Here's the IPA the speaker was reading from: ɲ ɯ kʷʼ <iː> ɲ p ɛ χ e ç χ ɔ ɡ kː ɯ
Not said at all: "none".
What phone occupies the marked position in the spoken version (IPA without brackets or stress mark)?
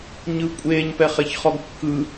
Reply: eː